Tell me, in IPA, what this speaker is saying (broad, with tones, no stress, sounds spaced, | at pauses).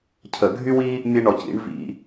cʰ ə˧˩˧ ɡʱ y˥ w i˥ | mʲ e˥ ɳ ɔ˨˩ c ḭ˩˥ ɳ v ḭ˧˩˧